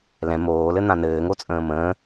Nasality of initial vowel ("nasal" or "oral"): nasal